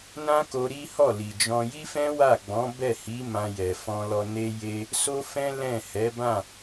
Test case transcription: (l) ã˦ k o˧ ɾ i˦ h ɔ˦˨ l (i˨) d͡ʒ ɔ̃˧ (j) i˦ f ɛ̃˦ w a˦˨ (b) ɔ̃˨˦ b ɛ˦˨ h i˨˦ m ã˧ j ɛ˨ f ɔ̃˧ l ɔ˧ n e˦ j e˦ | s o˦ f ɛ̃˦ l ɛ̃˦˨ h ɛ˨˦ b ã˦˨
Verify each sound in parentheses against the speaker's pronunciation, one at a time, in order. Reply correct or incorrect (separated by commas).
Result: incorrect, correct, correct, incorrect